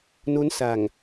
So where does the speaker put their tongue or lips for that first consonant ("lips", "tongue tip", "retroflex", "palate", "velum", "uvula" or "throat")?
tongue tip